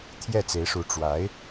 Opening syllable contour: falling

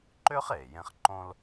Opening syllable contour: high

